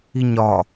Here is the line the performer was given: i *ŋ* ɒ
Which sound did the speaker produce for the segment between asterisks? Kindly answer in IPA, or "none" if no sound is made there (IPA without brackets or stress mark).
ɲ